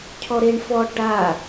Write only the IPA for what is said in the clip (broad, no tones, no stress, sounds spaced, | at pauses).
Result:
cʰ ɔ ɾ e ɳ f ɔ ʈ a